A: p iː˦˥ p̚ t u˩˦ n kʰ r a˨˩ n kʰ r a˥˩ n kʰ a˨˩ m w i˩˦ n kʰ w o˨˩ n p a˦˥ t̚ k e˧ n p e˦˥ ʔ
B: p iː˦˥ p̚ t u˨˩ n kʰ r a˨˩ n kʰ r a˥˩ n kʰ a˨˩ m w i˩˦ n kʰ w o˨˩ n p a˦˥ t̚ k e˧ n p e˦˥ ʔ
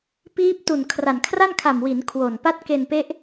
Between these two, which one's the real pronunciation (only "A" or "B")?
B